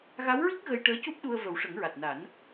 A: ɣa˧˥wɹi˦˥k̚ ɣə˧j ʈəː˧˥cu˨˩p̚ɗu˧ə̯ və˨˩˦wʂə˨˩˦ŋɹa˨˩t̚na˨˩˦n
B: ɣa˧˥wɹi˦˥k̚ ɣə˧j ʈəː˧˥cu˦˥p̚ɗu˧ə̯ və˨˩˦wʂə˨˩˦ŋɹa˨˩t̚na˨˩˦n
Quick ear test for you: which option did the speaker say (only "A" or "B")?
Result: B